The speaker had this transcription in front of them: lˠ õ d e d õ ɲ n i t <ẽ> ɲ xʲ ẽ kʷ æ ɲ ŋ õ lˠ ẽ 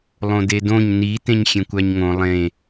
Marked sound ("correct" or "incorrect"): correct